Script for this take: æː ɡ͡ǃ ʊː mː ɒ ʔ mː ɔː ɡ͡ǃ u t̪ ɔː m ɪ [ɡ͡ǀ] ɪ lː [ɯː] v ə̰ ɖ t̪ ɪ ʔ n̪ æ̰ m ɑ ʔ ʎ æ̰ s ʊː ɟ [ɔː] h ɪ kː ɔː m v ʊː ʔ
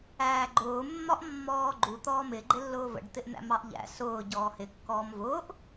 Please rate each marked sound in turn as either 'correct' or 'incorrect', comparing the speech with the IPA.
incorrect, incorrect, correct

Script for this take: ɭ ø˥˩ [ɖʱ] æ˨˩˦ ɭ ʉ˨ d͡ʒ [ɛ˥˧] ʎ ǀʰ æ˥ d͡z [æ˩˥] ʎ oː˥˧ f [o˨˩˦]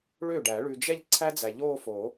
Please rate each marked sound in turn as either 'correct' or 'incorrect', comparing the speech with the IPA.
incorrect, correct, incorrect, correct

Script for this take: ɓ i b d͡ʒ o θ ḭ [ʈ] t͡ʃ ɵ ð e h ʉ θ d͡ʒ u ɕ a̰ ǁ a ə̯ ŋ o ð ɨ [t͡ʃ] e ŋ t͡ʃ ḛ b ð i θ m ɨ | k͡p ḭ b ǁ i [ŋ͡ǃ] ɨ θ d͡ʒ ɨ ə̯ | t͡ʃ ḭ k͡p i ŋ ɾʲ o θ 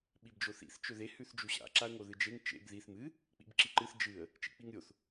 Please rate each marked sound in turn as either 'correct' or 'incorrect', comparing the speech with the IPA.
incorrect, incorrect, incorrect

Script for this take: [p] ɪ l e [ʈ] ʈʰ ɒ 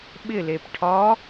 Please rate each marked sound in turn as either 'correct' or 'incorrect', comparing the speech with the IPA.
incorrect, incorrect

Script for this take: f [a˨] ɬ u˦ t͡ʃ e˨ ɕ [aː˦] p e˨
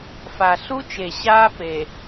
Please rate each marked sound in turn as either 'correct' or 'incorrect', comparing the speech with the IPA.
correct, correct

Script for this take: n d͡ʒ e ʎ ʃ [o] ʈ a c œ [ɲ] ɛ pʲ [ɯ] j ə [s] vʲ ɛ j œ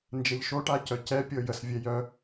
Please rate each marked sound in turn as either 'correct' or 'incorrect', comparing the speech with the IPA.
correct, incorrect, incorrect, correct

